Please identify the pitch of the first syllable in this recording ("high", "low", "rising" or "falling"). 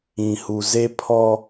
low